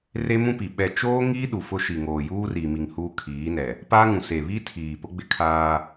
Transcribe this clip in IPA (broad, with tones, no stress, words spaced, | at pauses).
re˦mũ˦pi˨ ɓɛ˨ t͡ʃoː˦ ŋiː˦ɗu˨ fʊ˦ʃi˨ŋoː˨ juː˦ri˨mi˨ŋ huː˦kʰiː˨˦nɛ˨ | paː˦ŋũ˨ se˨βi˦tʰiː˨ pʊ˦ɡ͡bɪ˦ kʰaː˦